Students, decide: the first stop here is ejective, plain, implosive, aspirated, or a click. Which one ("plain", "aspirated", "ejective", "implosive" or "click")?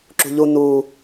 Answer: click